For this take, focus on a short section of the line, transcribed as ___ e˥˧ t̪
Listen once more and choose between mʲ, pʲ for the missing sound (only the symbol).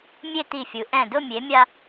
mʲ